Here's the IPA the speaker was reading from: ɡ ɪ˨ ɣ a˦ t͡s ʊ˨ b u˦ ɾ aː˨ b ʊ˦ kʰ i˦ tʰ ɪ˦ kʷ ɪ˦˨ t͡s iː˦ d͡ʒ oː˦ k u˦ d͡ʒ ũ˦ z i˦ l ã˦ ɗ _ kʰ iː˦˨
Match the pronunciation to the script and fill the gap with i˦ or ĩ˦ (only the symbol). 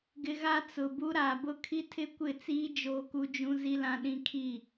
ĩ˦